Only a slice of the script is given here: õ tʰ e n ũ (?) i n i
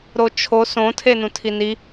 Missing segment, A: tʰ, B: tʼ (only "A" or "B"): A